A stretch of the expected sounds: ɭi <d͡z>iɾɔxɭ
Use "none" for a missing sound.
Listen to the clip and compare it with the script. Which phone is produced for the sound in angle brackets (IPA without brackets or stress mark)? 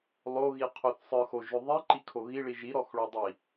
ʒ